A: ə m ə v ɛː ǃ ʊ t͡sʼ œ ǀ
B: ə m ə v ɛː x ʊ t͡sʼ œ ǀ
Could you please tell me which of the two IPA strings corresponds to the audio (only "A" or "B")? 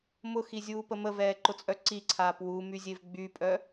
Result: A